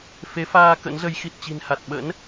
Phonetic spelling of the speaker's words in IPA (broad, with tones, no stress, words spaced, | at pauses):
fe˨˦faː˧ kə̰˧˥nzə˨˦j xi˨˩t̚t͡ɕi̤˨˩nha˨˩t̚ ɓə̰˧˥n